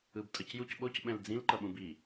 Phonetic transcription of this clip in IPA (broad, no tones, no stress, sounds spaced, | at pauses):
ɯ b tʼ ʌ c j u c ɓ o c ɓ ɛ̃ l d͡z ĩ l ǃ ʌ ɓ ũ b i